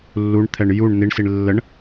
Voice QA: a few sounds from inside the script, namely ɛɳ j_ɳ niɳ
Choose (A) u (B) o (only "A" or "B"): A